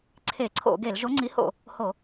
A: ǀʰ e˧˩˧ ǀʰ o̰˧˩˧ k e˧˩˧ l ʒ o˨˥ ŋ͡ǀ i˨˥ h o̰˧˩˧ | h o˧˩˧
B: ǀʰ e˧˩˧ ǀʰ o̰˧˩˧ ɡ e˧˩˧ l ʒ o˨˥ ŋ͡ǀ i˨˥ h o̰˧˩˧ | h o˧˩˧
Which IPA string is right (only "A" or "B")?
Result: B